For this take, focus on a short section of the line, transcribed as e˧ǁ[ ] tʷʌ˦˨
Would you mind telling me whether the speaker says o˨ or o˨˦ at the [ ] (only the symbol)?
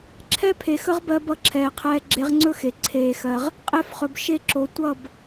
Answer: o˨